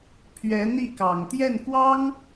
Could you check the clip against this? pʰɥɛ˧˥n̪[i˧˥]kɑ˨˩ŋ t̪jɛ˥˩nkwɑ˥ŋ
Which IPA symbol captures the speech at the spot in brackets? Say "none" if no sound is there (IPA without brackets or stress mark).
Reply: i˥˩